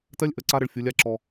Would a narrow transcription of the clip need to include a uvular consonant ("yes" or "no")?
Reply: no